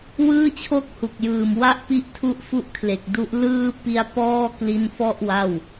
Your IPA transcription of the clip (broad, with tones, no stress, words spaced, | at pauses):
wɯː˥˩t͡ɕʰo˥˩k̚hu˨˩k̚jɯː˨˩m wa˥˩ʔ pi˥˩ʔtʰu˥˩ʔfu˥˩ʔkʰle˨˩k̚ du˦˥ʔlɯː˥˩ pi˦˥a̯pɔː˥˩kli˦˥nfɔ˥˩ʔ wa˥˩w